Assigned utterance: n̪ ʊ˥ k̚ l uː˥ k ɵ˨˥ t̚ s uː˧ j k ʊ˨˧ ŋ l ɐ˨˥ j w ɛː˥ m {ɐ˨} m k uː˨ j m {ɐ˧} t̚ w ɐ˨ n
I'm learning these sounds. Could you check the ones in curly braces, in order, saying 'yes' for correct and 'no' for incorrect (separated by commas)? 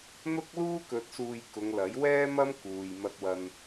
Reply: no, no